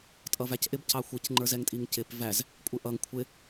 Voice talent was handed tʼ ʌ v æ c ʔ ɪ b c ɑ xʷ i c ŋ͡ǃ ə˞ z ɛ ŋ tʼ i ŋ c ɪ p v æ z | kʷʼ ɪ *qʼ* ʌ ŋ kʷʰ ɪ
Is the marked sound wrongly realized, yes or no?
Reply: yes